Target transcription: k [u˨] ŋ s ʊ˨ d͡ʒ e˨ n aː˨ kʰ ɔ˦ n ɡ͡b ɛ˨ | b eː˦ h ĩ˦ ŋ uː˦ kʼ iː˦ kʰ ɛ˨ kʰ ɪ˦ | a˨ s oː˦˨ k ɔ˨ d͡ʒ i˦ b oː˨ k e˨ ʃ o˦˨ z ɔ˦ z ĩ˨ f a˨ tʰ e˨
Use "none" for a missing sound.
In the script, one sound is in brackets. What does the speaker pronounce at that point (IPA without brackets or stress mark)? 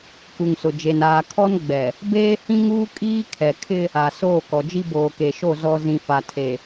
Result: u˨